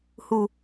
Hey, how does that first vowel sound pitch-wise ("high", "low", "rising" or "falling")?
low